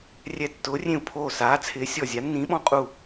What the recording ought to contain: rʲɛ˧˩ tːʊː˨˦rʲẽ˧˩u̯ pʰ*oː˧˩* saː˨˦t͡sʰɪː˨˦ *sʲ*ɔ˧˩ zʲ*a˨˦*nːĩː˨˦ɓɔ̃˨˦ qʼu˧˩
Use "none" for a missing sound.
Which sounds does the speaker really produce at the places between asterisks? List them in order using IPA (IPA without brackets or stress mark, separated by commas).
oː˧˩, sʲ, a˨˦